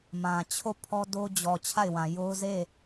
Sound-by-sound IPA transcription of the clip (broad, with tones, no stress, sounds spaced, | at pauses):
m ã˨ t͡ɕʰ o˦˨ pʰ ɔ˦ d o˦ d͡ʑ ɔ˨ t͡ɕʰ a˦˨ ɪ̯ w ã˨ j o˦ ʊ̯ z e˦˨